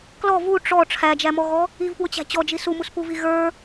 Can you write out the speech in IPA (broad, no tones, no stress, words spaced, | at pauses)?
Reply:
klɔ vu ʈ͡ʂɔ ʈ͡ʂʰæd͡ʒæmɔɣɔ | ivpwʊt͡ɕæ̤ t͡ɕɔd͡ʒi sumuspuvi ɣə˞